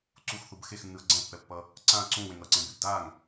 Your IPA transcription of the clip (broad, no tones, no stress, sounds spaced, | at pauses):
ǀ u x θ u b x e x nː ɯ ɐ̯ ɡ͡ǀ ɛ̃ pː ɛ pː ʌ | ǀ ã ɐ̯ ǀ ũ w ẽ ŋ ʌ ǀ ẽ b e b d a ŋ